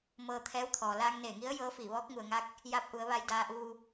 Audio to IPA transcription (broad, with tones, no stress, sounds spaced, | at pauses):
m ɤː˧ t̪ʰ ɛː˧˥ w t̪ʰ ɔː˩ l aː˧ ŋ n eː˧˩ ŋ i˧˥ ə̯ j ɤː˧˥ f iː˧˩ ʋ ɔː˧˥ k̚ ŋ u˩ ə̯ ŋ a˧˥ k̚ | j a˧˥ p̚ ʔ u˩˧ ə̯ ʋ a˧ j d aː˧ ʔ uː˧